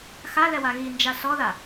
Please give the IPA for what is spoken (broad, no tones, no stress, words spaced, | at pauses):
xalɛwa ɣind͡ʒa sɔða